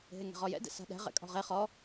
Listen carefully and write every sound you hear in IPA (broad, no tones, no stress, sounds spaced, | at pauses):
ɦ e ŋ ɛ̤ ʁ ɔ j ɛ̰ d ɛ̰ s a̤ ɗ ɛ̤ ʁ ɛ̰ kʼ ɔ̤ ʁ e χ ɔ